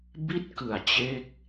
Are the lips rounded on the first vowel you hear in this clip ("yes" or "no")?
no